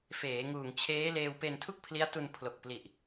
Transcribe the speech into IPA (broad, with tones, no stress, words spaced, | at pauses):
feː˩˦ŋuː˨˩ŋt͡ɕʰeː˦˥ leː˧wpe˧ntʰu˥˩k̚ pʰli˦˥a̯tu˧n pʰlo˨˩k̚pli˨˩ʔ